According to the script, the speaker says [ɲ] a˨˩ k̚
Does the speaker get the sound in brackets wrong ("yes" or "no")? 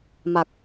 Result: yes